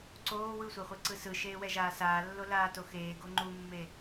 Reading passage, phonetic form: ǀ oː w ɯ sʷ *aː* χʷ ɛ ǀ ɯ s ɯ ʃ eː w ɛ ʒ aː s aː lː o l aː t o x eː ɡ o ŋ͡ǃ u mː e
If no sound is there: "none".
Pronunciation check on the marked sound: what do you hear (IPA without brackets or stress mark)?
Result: a